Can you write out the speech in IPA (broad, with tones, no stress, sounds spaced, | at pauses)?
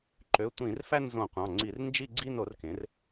ǃ ø˩˧˩ tʷ ĩ˧˩˧ r f æ˥˧ n z õ˧˩˧ qʷ ɑ̃˩˧˩ ŋ͡ǀ i˧˩˧ r n d͡ʒ i˥˧ ɡ͡ǀ i˥˧ n o˩˥ r k ẽ˩˥ r